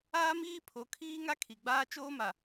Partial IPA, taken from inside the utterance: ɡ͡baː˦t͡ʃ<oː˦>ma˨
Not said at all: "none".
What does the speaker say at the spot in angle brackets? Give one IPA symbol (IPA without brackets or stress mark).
oː˦